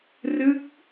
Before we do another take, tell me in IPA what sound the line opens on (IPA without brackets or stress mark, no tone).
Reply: r